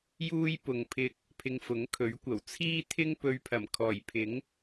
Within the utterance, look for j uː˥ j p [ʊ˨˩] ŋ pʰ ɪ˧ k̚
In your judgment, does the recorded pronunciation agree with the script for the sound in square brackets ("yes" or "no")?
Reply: no